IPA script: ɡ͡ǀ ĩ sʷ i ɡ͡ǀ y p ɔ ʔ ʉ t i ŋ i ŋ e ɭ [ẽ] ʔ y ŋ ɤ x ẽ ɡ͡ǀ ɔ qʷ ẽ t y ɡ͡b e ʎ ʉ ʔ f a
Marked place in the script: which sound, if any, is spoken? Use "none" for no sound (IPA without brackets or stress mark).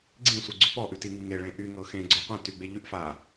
ẽ